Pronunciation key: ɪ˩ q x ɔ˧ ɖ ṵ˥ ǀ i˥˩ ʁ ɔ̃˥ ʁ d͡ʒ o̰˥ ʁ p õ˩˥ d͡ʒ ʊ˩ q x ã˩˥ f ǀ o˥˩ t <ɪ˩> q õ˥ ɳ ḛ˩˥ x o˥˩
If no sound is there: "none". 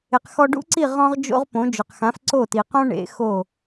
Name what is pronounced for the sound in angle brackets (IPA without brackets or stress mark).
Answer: i˩